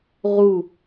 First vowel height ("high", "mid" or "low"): high